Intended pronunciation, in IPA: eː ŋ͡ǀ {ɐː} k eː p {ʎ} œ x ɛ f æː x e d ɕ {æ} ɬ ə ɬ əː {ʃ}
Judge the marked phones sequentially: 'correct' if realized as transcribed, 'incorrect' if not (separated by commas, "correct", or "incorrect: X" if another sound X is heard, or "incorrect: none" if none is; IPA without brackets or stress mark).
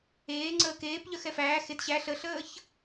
incorrect: əː, correct, correct, incorrect: ç